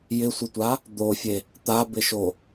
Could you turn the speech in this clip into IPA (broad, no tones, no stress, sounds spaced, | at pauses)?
j ɪ sʷ ɪ tʷ a | d̪ o fʲ e | t̪ a b ɪ ʃ o